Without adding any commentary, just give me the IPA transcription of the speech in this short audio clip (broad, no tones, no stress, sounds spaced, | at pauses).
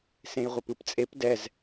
s ẽ j ʁʷ e p ɯ p t͡sʼ e p d ɛ z